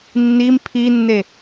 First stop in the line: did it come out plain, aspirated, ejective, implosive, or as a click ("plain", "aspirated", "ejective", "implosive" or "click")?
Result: aspirated